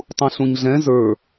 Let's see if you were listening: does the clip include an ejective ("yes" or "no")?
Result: no